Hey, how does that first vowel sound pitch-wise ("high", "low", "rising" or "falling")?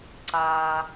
low